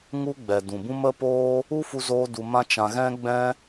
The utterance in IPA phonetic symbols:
ŋ u˦ ɡ͡b ɛ˨ d ũ˨ b ũ˦ m ə˦ p oː˦ | u˦ f u˧ z oː˧ d u˧ m ã˦ t͡ʃ ã˧ ɣ ɛ̃˦ ɡ͡b ɛ̃˦

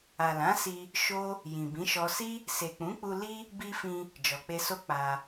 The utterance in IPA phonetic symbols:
a˨ l ã˨˦ s i˧ | ʃ o˦ | j ĩ˨ b ĩ˨˦ ʃ ɔ˧ s i˦ | s e˨ k͡p ũ˨˦ k͡p u˧ l i˦ | b i˧ f ĩ˧ | d͡ʒ ɔ˨ k͡p e˧ s o˦ k͡p a˧

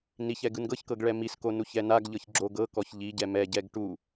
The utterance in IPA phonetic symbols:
n i ç ɛ ɡ ɯ n ɡ ɤ ç k ɤ ɡ ɭ ɛ m i s k o n u ç ɛ n a ɡ ʎ ɤ ç ɡ͡ǁ o ɡ ɤ k ɔ ç ʎ i ɟ ɛ m ɛ ɟ ɛ ɡ ʈ u

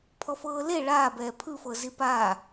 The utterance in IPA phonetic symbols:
pʰ ɔ f ɤː l e ɭ aː b ɛː pʰ ɯ f ɤ z i p aː

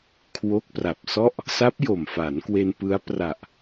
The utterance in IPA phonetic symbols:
kʰ w o˦˥ k̚ p r a˨˩ p̚ s ɔ˥˩ ʔ | s a˦˥ p̚ j o˨˩ m f a˩˦ n k w e˧ n p ɯ˦˥ a̯ p r a˨˩ ʔ

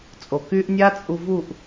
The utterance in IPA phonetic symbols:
t͡sʼ o˨ k y˦ ʔ nʲ a˦ t͡sʼ u˧ v u˦˨ ʔ

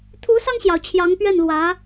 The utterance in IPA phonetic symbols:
t̪ʰ u˧˥ s ɑ˧ ŋ ɕ j ɑ˩ ʊ̯ t͡ɕʰ j ɑ˧˥ ŋ p ɥ ɛ˥˩ n l w ä˧˥

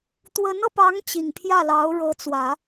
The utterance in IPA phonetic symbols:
t̪ w ə˧˥ n ɤ˧ p ɑ˧˥ ŋ t͡ɕ i˨˩ ŋ pʰ j ä˥˩ l ɑ˧˥ ʊ̯ ɻ ɤ˧˥ t͡s w ä˨˩˦

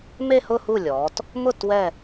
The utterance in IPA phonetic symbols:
m e˥˧ h ʊ˥˧ h u˥˩ lʲ ɔː˩˧ t | m ʊ˥˩ t w ɛ˧˩

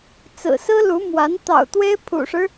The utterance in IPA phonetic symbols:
t͡s ɹ̩˨˩ s ɹ̩˥ l u˧˥ m w a˧˥ n t̪ ɑ̰˨˩ ʊ̯ t̪ w e˥ ɪ̯ pʰ ṵ˨˩ ʂ ɻ̩˦

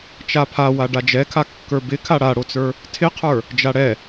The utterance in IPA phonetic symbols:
t͡ʃ a pʰ a w a ɖ a d͡ʒ ɛ kʰ a kː ə˞ b ɪ kʰ a ɽ a ɽ o t͡s ə˞ | tʰ ɪ qʰ ə˞ | d͡ʒ a ɽ ɛ

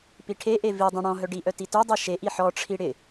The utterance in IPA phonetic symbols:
p i ʈʰ e ʔ e v i dˤ œ̃ ɽ ɔ̃ ɦ œ ɖ i ʔ œ t i t œ dˤ e ʃ e ʔ i ħ ɔ ʈ͡ʂʰ i ɽ ɪ

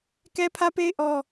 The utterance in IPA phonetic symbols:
k ɛ˦ pʰ ä˦ p e˦ ɪ̯ ʔ ɔ˦

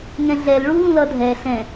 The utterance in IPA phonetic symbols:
ŋ ɛ̃ ɮ ɛ l ɭ u l ũ l ʌ dʱ ɛ ɬ ɛ̃

